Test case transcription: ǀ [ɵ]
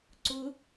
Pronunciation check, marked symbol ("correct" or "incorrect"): incorrect